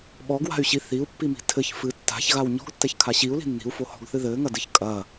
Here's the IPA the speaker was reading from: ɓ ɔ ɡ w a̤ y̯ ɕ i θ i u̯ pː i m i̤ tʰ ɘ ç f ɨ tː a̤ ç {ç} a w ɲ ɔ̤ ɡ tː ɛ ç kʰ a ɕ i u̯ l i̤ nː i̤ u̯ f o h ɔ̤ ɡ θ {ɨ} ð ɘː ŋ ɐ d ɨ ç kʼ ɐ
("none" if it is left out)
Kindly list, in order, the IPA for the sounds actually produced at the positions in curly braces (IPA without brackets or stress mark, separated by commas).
ɣ, ɨ